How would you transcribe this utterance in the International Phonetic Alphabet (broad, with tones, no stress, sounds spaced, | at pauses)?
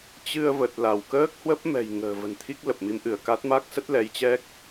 t͡ɕ ɨ˧ ə̯ v ə˨˩ t̚ l a˧˩ w k əː˦˥ k̚ h w ə˦˥ p̚ m ɛ̤˨˩ j ŋ ə̤ː˨˩ v ə̤˨˩ n t̪ʰ i˦˥ k̚ l ə˨˩ p̚ m i˨˦ m ʔ ɨ˧˩ ə̯ k a˦˥ t̚ m a˦˥ k̚ s ə˦˥ t̚ l ɛ˨˦ j t͡ɕ ɛ˦˥ k̚